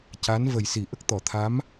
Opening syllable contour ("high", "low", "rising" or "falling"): rising